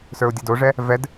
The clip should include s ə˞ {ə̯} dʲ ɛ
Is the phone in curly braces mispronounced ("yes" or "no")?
yes